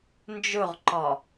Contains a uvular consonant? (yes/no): yes